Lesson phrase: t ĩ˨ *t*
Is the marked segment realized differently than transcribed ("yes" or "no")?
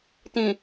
yes